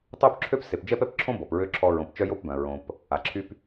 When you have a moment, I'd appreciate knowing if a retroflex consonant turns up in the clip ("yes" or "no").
no